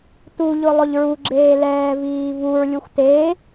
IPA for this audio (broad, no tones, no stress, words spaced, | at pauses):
tuʎʊ lˠʊʎɹuɡ͡ǁeː lɛːviːvuɹlʲuxʷ te